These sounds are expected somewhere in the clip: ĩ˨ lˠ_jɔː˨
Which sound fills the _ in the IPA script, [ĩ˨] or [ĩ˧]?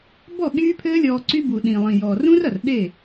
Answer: ĩ˨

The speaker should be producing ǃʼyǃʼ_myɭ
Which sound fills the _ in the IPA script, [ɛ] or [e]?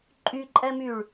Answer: ɛ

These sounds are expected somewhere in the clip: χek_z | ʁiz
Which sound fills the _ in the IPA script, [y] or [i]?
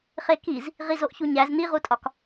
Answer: i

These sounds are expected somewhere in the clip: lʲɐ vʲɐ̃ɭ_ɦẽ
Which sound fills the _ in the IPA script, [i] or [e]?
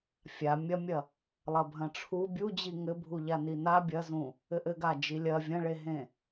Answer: e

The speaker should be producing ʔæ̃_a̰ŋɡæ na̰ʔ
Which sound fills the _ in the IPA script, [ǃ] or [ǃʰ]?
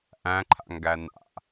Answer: ǃʰ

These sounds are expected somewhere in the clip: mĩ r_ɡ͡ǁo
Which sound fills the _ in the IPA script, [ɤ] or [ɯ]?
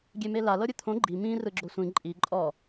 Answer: ɯ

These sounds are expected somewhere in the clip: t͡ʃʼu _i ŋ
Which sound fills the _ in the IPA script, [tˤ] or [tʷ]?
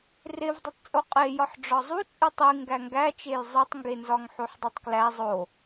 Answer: tˤ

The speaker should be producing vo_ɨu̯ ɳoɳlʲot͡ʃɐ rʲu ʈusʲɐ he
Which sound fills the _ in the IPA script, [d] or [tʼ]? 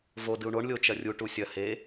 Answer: d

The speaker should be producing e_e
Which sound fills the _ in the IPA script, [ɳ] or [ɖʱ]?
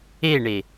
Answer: ɳ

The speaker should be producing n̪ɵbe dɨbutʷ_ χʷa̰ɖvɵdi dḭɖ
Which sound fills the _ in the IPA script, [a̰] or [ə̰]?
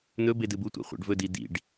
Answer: a̰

